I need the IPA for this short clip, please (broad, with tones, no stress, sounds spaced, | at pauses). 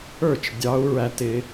ə˞˥˨ t͡ʃ dʲ ɑ˦˥ u̯ ɹ æ˦˥ t ɪ˦˥